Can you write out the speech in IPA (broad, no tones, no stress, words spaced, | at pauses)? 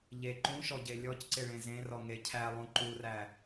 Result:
ʎe ǃũʃɔɟe lʲɔcǀɪ ɭẽzẽrɔ ŋecʰælˠũ ǃuræ